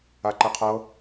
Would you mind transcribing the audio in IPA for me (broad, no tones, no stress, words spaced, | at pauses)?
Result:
aǃeqʰɤ